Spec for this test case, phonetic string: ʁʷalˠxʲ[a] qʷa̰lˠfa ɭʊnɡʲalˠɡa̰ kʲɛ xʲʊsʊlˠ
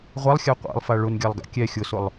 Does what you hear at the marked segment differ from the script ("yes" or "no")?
no